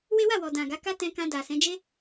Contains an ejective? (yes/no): no